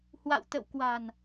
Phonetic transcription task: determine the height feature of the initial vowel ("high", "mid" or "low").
low